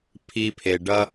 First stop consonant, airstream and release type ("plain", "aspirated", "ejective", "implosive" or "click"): aspirated